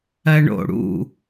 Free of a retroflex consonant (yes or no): no